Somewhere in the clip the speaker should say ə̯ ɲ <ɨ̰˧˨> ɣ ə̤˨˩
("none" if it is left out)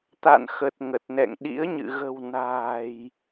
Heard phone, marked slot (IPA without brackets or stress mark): ɨ̰˧˨